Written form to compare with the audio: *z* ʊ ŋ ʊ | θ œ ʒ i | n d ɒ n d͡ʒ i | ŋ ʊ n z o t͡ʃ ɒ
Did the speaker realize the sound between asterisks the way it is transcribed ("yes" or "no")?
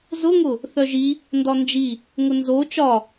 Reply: yes